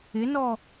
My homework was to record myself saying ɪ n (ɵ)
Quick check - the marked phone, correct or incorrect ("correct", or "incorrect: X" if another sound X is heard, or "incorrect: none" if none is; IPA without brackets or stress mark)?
incorrect: ɔ